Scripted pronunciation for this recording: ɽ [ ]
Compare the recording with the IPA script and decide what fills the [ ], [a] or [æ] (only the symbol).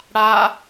a